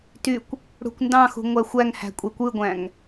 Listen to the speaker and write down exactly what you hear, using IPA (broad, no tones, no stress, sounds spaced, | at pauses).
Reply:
t y kʷ | ɽ ṳ kʷ n d ɑ̃ x ṳ ŋʷ æ xʷ æ ŋ h æ̤ kʷʼ e kʷ ɯ ɡʷ æ̃ ŋ